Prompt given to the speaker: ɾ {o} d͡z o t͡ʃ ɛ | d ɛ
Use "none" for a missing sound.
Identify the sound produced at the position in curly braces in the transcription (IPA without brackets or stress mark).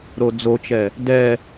o